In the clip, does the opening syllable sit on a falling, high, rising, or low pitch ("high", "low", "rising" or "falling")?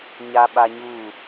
high